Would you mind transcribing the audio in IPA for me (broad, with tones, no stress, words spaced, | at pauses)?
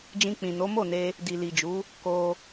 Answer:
d͡ʒĩ˧k͡pĩ˨no˨˦ mo˦˨ne˧ | di˨li˨d͡ʒu˨˦ | ko˦